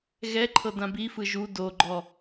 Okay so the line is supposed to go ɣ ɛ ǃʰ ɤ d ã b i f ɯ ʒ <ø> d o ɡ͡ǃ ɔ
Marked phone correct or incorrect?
incorrect